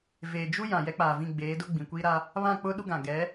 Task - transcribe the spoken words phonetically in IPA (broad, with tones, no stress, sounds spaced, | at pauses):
v eː˨ d͡ʒ u˦ j ã˨ j ɛ˦ k͡p aː˨ v ĩ˦˨ ɡ͡b eː˨˦ d ʊ˦ ɡ͡b ĩ˨ kʷ iː˦ ɾ a˦ | β ã˦˨ k͡p ʊ˦ ɗ u˦ ɡ ã˨ ɡ ɛ˨˦